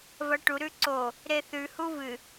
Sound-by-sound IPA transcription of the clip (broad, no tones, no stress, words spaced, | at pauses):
vɐʈu ɾʉǀo | ɾeθʉ huvɨ